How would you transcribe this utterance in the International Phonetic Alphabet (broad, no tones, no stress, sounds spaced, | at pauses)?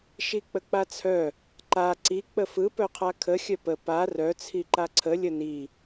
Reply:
ʃ i k͡p ə k͡p a t͡sʰ œ | ǃ a ǀ i k͡p ə f ɯ p œ qʰ a kʰ ə xʲ œ p ə p a r œ t͡sʰ i ǃ a ǀʰ ə lʲ ə n i